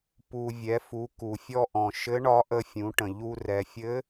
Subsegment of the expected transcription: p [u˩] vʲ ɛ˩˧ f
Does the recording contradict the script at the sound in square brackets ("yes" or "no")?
no